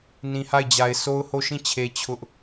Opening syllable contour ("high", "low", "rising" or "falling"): low